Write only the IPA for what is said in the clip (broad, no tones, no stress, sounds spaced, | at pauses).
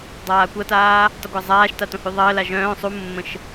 dˤ aː kʷ ɐ t aː | tˤ ə ɡʷ a zˤ aː ʃ t a t õ h y ðˤ əː l a ʒ œ̃ː sˤ u mː ə̃ ʃ